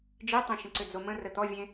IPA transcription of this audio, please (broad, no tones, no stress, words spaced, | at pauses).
d͡ʒitˤẽ ʃə̃ǀʏd͡zomə̃ rət̪ɔvʲẽ